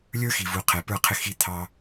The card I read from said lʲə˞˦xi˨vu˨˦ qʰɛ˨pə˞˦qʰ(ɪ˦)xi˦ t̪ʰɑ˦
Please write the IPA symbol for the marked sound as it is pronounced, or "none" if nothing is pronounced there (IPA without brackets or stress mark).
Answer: ɪ˦